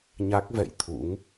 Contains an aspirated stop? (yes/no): yes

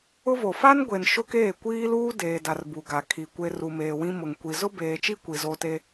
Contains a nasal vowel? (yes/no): yes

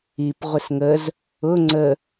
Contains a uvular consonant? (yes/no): yes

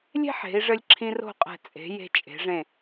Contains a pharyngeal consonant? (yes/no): yes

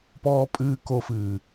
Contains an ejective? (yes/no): yes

